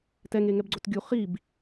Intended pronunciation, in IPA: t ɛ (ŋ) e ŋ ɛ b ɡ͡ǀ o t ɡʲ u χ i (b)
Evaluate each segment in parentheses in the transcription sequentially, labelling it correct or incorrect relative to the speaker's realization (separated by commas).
correct, correct